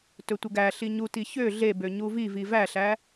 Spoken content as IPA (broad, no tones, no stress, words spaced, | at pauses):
tɵtʷəɡæɬi ɲuti çø ɮe bøɲuvivi væɬæ